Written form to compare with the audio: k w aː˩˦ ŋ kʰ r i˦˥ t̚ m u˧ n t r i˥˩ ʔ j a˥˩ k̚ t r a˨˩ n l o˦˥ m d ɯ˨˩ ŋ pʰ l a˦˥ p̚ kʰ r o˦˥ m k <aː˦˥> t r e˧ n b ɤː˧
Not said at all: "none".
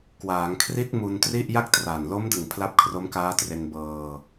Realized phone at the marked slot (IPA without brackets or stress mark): aː˦˥